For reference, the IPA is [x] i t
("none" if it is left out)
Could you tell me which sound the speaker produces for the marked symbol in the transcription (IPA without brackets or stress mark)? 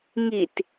ŋ